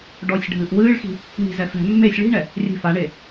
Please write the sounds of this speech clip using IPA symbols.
ɖɔsʲ ɖʱɨːʔwɨːɭxi̤ | ŋi̤zɛ fɛ̤ mːesʲ ɭi̤ɳɛ | rʲɛ̤faɳe

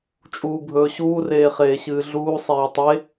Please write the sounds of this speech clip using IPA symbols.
t͡ʃʼuːbʱɵːɕuː reːχeːɕɨːɮuː sˤeːtˤe

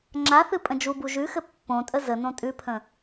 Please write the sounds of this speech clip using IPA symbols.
ŋ͡ǁaθɨ pʼə̃d͡ʒubu ʒʉxɘ pːõtʼə zənõ tʼʉpʰə̃

